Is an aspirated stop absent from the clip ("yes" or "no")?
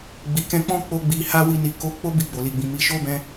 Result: yes